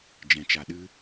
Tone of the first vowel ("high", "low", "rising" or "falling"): low